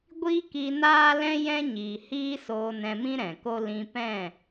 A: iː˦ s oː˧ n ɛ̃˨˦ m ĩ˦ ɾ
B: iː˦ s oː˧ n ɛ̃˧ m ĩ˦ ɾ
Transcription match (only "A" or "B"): B